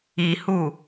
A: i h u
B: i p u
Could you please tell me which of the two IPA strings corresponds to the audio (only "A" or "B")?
A